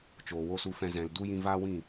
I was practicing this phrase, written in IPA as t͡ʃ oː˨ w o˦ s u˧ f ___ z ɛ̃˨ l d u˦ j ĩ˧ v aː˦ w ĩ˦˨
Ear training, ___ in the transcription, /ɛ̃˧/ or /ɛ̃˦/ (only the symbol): ɛ̃˧